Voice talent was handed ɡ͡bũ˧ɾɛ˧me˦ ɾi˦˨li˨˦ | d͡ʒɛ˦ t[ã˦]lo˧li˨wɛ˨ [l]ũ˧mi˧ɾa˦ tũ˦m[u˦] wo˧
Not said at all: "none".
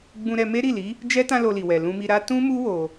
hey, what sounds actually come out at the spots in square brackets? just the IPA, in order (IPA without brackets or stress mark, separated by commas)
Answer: ã˦, l, u˦